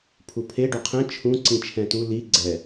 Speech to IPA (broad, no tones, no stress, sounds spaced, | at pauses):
pʰ u pʰ e ɖ o qʰ ɛ̃ t͡ʃʰ ũ ǀ ĩ t͡ʃʰ ɛ̃ t u l i ɡ͡ǀ ɛ